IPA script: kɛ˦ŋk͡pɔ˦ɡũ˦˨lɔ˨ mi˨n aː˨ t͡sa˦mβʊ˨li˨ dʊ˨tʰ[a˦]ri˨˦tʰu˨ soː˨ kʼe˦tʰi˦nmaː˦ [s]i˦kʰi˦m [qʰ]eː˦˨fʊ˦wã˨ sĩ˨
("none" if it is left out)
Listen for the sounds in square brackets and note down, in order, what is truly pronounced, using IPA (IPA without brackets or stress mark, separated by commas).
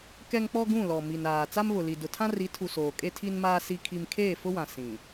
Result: ã˦, s, kʰ